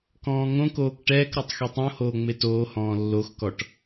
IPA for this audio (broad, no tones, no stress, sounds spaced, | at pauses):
k ɔ̃ː ŋ õ k oː k ʈ ɛː k ɾ ɔ tˤ x e tˤ õ h oː ŋ͡m e t oː h ɔ̃ː lː o x k ɔ ʈ